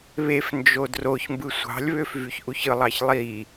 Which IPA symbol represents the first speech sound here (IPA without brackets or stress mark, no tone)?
β